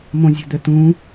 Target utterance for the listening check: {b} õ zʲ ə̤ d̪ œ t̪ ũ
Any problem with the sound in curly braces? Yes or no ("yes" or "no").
yes